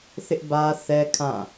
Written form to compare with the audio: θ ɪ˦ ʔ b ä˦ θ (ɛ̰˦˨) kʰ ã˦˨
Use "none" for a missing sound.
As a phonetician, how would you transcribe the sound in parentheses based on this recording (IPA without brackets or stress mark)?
ɛ˦